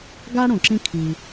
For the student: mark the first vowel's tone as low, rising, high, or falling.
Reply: high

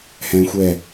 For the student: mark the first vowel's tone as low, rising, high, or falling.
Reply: high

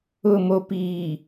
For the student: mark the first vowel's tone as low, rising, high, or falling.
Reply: low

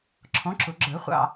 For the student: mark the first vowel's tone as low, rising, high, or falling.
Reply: rising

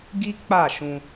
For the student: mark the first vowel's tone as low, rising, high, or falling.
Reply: high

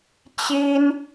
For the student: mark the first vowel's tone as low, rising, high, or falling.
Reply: high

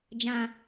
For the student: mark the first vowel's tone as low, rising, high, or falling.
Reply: low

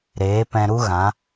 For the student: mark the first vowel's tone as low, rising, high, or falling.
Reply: rising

